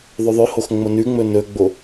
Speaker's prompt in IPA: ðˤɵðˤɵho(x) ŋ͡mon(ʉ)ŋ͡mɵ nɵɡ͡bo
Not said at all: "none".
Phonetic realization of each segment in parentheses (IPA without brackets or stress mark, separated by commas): x, ʉ